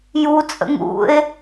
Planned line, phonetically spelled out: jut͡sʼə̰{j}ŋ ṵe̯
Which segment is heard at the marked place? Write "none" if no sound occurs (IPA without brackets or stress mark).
none